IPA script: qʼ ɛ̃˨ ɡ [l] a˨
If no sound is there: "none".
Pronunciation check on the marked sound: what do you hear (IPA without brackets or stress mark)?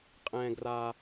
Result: r